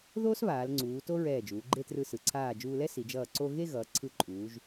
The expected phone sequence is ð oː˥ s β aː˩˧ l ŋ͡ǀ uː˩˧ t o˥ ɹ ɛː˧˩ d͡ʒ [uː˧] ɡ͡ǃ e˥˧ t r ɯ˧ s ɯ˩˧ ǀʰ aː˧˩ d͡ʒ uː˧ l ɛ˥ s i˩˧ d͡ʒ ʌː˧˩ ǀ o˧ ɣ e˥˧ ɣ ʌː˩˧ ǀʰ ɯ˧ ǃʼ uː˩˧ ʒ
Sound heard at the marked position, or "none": uː˩˧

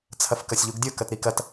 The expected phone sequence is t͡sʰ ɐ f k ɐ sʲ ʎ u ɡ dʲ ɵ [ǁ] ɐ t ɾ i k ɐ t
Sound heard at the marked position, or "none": k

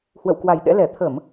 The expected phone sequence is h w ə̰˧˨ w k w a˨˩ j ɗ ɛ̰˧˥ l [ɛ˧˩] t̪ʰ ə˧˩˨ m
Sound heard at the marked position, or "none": ɛ˧˩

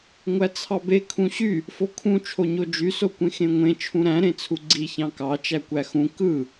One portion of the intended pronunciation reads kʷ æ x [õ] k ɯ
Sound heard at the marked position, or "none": ũ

